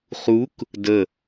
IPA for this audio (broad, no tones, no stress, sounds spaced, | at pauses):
χ u k | d ə